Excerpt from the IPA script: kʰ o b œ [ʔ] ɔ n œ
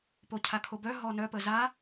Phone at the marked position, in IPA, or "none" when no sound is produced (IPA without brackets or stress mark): ɦ